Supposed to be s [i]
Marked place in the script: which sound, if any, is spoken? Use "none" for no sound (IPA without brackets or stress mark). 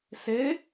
e